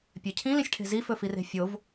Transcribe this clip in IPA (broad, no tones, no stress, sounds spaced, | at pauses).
pʲ ø cʰ ĩ l ĩ sʲ ʈʰ e̤ z i f ɵ f i r e̤ fʲ o v